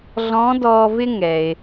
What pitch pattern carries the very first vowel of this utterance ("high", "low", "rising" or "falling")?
rising